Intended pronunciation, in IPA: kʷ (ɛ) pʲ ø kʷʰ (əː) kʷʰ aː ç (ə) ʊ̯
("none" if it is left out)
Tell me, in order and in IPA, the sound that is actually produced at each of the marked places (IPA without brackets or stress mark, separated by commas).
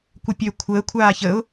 ə, əː, ə